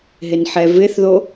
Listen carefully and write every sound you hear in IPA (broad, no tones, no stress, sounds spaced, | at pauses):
ɦ ɪ n ħ ɛ v ɪ θ ð o